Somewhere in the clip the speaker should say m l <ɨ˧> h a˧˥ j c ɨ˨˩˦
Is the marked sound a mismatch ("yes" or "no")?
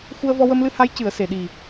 no